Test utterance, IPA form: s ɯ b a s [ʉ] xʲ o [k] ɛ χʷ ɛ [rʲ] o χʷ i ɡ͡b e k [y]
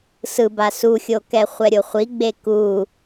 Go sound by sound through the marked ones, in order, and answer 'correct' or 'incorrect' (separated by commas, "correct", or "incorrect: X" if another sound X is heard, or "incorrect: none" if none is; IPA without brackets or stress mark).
incorrect: u, correct, incorrect: ɾʲ, incorrect: u